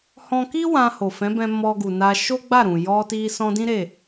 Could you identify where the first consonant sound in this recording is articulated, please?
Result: glottal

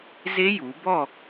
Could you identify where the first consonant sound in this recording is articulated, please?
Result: alveolar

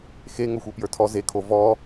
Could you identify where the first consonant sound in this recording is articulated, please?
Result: velar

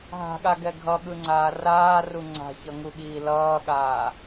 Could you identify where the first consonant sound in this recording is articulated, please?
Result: glottal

